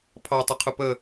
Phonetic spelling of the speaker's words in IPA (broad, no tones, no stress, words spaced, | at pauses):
pʰɑtˤɪqʰʊ pə